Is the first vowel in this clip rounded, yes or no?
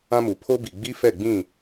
no